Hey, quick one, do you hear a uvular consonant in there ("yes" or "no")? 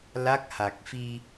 no